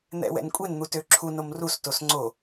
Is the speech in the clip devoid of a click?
no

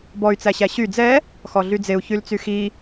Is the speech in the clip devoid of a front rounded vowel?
no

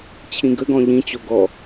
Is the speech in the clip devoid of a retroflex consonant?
yes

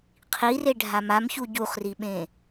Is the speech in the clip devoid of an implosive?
no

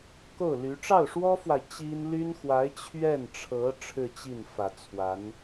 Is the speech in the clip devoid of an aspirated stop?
no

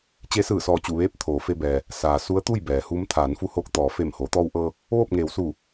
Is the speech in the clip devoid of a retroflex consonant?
yes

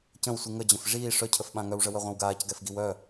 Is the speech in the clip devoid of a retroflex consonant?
no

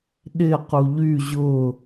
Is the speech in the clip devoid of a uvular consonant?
no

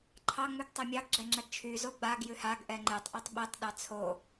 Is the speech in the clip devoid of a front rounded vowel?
no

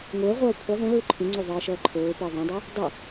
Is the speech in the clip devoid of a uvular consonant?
no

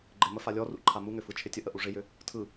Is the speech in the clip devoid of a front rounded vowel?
no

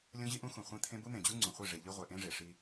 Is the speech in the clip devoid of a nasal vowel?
no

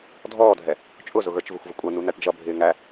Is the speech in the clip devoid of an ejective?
no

